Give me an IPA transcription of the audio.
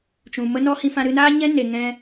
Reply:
t͡ʃ ũ˨ m ə˦ n ɔ˦ h ĩ˧ f ã˧ ɾ ɨ˧ n aː˦ ɲ ɛ̃˦ n e˨ ŋ ɛ̃˧

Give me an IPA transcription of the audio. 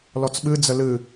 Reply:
l ɔ t͡s ɓ ɨ d͡z ə l ɨ

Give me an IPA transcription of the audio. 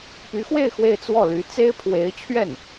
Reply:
p y˧˥ x w e˥˧ ɪ̯ x w e˥˧ ɪ̯ t͡s w ɔ˥˩ l y˧˥ t͡s e˥ ɪ̯ pʰ w e˧˥ ɪ̯ t͡ɕʰ ɥ ɛ˥˩ n

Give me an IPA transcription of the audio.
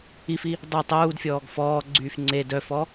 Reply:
i f i | dˤ u tˤ uː d fʲ ɔː ɡ f ɔː ɡ͡ǀ yː f ŋ͡ǀ e d œ f ɔ

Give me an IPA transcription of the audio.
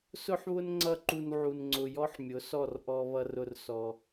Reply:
s ʊ˦ ħ β ʊ˦ n ŋ͡ǀ ʌ˦˨ ǃ u˧ n ʕ u˧ n ŋ͡ǀ ʊ˧ j ɔ˦ ħ mʲ ʊ˨˦ s ɔ˦˨ r ʔ ɔ˦ β ʌ˦ r ʊ˦ r s ɔ˧

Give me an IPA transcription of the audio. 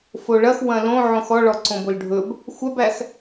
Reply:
f o ɭ ɐ x w ɐ̃ l õ ʕ õ x ɔ ɭ ɔ ǀ õ b o l ɖʱ ɵ b | xʷ a b æ x

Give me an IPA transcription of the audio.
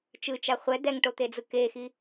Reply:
t͡ʃ ɯ t͡ʃ a χʷ ɛ d̪ ɛ ŋ ʈ o t̪ e d͡z ɯ k e x i

